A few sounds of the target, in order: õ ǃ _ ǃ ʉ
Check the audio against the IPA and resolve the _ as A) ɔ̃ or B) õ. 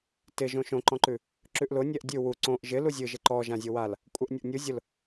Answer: A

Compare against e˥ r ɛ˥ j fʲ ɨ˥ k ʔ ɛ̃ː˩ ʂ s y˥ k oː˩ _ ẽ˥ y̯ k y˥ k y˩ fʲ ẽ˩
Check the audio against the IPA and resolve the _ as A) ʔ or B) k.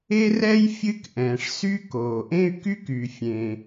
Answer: A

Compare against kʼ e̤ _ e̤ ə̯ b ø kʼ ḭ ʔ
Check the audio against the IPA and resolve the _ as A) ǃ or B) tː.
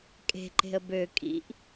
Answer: A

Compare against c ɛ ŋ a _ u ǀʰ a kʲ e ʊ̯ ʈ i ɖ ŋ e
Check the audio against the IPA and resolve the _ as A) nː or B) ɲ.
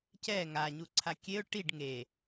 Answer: B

